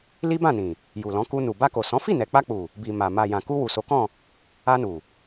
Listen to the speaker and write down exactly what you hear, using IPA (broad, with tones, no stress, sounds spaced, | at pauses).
l i˦ b ã˦˨ n ĩ˨ | j u˨ l ɔ̃˨˦ k u˧ n u˨ b a˧ k o˨ s ɔ̃˨˦ f i˦˨ n ɛ˨ k͡p a˧ k͡p u˨ | b i˨ m a˨ m a˨ j ã˨ k u˧ w u˨ s o˨˦ k ɔ̃˦˨ | a˧ n u˨